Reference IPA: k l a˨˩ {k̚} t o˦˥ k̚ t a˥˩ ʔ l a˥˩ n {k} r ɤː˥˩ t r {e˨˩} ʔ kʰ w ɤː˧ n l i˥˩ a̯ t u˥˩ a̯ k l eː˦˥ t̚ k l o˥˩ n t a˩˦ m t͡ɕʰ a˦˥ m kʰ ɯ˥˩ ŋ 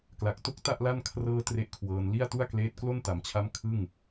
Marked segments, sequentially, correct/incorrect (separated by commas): correct, incorrect, incorrect